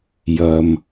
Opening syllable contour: low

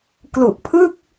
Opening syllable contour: low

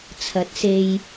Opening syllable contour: rising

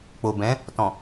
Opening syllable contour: low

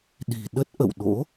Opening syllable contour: low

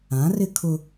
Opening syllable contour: rising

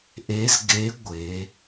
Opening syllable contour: rising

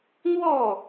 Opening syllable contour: falling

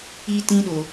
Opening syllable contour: high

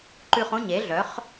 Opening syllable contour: low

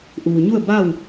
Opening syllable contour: low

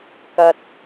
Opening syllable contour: low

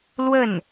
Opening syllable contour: falling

